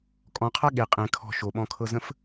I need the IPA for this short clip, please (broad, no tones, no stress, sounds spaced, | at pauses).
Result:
kʼ ɔ̃ qʰ a ɠ e qʼ ẽ kʰ ɔ̤ ʃ o ɓ ɔ̃ kʰ ɤ z ə̃ f